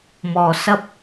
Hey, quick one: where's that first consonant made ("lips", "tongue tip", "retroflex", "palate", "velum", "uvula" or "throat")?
lips